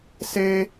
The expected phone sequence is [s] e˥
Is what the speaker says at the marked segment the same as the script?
yes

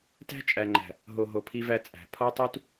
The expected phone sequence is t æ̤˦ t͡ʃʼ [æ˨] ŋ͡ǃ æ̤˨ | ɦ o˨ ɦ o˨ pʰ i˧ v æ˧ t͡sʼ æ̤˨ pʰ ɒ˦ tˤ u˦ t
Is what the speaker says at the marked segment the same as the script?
yes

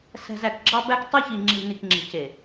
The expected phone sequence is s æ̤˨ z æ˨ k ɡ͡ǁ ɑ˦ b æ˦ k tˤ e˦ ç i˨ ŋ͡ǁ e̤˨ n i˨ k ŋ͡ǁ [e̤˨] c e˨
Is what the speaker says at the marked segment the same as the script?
yes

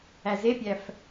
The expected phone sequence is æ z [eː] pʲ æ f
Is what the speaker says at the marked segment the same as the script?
no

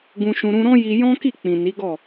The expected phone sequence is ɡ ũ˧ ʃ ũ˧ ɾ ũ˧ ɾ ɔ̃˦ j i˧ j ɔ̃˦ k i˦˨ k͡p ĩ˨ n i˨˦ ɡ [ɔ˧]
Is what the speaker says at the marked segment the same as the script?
no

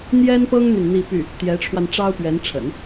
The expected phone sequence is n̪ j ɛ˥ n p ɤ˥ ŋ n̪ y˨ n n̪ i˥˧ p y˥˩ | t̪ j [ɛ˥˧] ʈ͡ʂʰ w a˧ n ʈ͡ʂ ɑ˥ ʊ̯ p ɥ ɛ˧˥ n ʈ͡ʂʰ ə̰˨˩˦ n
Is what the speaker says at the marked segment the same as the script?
no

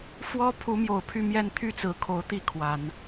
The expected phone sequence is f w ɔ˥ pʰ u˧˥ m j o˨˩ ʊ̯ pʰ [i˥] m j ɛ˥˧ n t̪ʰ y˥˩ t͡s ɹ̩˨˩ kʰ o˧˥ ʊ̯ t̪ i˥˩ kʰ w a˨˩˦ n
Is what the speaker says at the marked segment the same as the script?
no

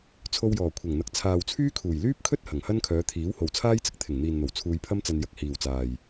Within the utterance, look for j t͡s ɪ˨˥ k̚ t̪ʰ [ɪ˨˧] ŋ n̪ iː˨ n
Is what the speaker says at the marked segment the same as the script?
no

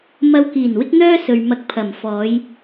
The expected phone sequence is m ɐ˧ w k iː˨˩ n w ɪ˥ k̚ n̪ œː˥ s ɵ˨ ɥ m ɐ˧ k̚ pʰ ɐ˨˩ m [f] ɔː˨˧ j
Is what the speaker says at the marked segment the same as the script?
yes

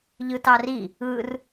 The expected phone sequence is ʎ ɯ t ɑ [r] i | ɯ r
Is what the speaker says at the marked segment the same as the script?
yes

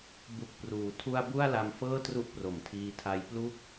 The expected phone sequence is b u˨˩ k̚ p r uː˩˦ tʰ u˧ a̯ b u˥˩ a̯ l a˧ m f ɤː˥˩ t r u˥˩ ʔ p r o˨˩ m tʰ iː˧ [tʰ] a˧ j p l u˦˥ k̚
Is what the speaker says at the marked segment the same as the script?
yes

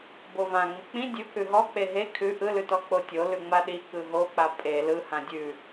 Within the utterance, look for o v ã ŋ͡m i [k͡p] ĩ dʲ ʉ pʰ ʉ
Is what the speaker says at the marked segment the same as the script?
yes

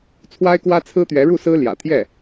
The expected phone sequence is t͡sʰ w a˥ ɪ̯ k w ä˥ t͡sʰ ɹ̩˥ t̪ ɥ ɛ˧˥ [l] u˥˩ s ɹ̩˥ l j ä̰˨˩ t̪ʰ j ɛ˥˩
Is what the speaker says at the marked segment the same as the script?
no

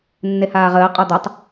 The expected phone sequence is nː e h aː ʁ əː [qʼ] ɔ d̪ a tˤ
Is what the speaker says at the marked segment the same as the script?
yes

